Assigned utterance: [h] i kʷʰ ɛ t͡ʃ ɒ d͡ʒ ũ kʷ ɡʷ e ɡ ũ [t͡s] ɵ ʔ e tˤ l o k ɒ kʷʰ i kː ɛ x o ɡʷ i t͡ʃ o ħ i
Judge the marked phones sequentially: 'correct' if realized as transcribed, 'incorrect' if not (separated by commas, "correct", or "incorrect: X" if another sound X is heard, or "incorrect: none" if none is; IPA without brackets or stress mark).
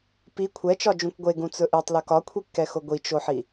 incorrect: p, correct